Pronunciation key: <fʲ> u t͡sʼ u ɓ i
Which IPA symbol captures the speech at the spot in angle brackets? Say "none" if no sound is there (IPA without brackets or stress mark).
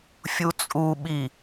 fʲ